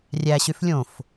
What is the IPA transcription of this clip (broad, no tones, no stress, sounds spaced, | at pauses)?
rʲ æ ɕ y f lʲ õ f